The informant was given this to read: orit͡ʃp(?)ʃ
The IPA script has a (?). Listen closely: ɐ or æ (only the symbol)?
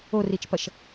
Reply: ɐ